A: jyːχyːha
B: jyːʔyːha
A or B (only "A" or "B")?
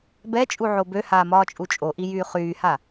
A